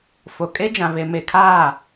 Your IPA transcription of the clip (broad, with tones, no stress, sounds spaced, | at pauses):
f o˨ kʼ e˦ d͡ʒ ã˨ β e˨ m e˨ kʰ aː˦˨